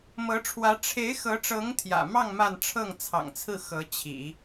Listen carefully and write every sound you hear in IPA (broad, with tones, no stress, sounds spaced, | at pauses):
m ɤ˧˥ ʈ͡ʂʰ w ä˧˥ ʈ͡ʂʰ e˧˥ ɪ̯ x ɤ˧˥ ʈ͡ʂ ɤ˧˥ ŋ t̪ʰ j ä̰˨˩ m ɑ˥˧ ŋ m a˥˧ n ʈ͡ʂʰ ɤ˥˩ ŋ t͡sʰ ɑ̰˨˩ ŋ t͡sʰ ɹ̩˥˩ x ɤ˧˥ t͡ɕʰ ḭ˨˩˦